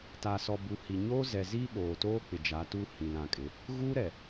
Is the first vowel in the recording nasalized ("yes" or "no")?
no